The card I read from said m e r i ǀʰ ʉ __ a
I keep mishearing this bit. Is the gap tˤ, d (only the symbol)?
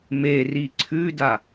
d